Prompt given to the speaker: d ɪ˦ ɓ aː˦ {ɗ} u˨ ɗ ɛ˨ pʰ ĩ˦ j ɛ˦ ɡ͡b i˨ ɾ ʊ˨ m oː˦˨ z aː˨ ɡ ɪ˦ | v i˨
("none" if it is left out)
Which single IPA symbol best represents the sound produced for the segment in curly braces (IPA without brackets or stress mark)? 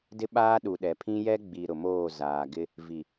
ɗ